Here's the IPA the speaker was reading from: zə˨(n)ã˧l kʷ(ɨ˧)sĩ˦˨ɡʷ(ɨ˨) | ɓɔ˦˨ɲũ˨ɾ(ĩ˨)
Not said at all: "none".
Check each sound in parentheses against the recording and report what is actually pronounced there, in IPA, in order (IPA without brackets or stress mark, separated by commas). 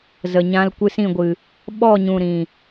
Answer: ɲ, ɨ˧, ɨ˨, ĩ˨